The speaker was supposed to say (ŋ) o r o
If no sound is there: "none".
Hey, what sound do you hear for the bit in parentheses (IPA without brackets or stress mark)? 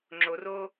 ŋ͡ǁ